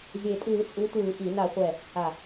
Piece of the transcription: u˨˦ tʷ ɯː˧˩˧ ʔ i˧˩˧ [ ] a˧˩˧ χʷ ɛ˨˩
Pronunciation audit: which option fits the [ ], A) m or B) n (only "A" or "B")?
B